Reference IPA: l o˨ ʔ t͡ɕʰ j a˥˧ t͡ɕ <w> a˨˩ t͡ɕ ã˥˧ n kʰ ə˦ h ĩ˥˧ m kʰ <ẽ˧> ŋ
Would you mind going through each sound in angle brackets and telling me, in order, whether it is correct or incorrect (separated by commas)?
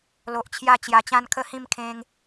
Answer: incorrect, correct